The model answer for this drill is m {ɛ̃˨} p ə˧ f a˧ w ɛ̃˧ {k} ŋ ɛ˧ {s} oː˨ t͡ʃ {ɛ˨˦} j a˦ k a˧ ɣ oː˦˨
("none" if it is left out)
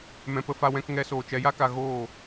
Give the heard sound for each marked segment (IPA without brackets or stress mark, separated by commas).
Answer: ɛ̃˨, k, s, ɛ˨˦